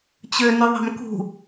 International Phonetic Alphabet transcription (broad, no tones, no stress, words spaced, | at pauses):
t͡ɕønyðˤa̤mkṳ